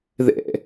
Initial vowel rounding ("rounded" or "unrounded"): unrounded